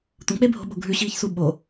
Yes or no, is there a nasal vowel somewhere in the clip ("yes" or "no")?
yes